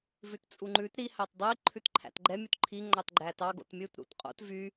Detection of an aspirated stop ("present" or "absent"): present